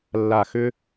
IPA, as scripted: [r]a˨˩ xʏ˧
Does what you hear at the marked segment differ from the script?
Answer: yes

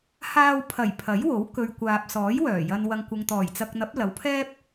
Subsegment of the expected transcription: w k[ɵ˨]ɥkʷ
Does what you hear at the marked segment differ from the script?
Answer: no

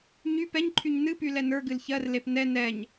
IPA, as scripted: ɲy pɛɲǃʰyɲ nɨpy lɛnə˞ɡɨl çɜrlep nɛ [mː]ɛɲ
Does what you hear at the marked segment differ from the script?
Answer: yes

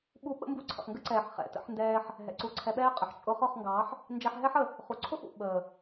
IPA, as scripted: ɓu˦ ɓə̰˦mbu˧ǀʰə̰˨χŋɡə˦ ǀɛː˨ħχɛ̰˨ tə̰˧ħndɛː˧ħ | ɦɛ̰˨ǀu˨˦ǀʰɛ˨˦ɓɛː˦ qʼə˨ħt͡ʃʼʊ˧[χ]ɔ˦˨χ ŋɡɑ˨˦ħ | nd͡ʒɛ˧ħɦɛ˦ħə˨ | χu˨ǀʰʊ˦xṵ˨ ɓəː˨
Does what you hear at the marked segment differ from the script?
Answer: no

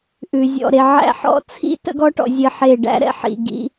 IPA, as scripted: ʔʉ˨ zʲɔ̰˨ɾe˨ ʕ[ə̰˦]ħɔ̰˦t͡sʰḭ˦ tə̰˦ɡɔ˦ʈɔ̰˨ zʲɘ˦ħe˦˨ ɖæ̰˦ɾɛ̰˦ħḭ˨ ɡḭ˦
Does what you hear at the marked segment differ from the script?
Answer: yes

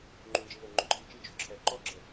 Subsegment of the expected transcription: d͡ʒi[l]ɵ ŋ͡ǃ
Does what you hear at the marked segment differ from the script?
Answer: no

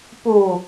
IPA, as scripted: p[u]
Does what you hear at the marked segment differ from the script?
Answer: no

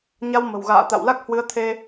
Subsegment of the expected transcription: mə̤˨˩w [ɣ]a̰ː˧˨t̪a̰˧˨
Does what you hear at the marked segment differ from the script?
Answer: no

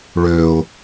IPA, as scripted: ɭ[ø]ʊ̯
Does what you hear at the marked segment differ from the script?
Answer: no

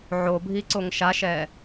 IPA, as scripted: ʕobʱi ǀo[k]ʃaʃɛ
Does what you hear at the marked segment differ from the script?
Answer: yes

